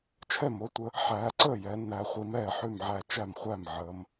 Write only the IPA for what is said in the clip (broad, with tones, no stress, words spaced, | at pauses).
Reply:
t͡ʃʰɛ˥˩mo˨˦tʷə˨˦ | ħæː˨˦ǀəː˥˩ jɛ˨˦nːæ˨˦χʷi˨˦m ɛː˥˩ħʉ˥˩mʕæ˥˩ t͡ʃæ˥˩mχʷæ˥˩m ʕəː˨˦m